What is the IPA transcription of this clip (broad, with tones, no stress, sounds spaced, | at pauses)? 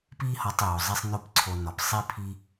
p i˦ h ɒ˧ tˤ j o˨ zˤ i˧ sˤ n o˦ p ǀʰ o˧ n ɒ˨ p sˤ i˧ pʰ i˦